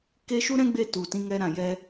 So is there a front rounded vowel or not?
no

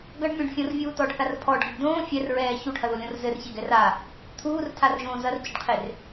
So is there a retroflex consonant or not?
yes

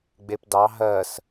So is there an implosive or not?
no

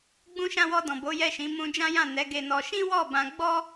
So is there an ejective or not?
no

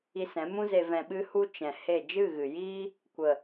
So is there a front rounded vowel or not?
no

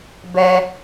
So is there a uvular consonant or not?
no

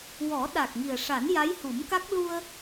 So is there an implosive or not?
yes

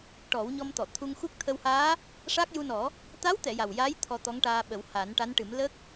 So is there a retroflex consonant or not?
yes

